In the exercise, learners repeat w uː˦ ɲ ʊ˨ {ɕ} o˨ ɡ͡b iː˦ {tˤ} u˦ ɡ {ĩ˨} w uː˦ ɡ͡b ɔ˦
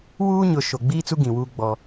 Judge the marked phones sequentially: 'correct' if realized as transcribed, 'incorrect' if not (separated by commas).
incorrect, incorrect, correct